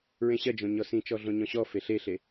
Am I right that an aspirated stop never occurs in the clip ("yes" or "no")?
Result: yes